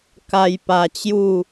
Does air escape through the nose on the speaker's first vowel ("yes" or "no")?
no